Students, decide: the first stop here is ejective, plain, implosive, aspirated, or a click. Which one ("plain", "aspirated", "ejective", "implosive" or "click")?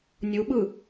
implosive